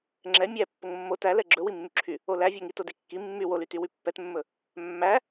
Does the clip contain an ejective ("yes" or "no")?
no